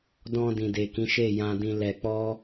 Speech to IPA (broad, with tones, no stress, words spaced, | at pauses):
dɔ̃˧ dĩ˨de˨kĩ˨˦ʃe˦˨ jã˧dĩ˧lɛ˧ k͡pɔ˦